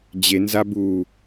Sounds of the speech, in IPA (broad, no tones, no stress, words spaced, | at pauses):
d͡ʑenza bu